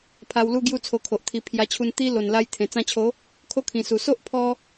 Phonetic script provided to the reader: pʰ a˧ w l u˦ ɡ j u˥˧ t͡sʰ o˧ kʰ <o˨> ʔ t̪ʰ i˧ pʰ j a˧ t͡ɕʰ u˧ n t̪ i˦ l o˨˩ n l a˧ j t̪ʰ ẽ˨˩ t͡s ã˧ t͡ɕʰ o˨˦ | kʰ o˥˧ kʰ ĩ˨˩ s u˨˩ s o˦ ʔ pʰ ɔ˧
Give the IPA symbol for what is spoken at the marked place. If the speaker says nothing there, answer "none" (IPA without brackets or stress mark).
o˨